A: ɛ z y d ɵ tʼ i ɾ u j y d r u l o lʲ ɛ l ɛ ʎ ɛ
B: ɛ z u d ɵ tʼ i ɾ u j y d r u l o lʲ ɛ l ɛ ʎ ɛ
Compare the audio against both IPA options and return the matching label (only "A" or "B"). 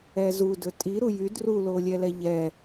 B